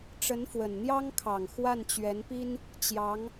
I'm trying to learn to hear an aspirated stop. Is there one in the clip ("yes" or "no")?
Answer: yes